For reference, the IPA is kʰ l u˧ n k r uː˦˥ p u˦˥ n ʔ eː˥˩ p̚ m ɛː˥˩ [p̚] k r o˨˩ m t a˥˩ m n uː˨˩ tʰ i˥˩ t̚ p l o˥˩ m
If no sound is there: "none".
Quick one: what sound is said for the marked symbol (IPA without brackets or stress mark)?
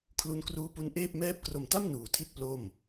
p̚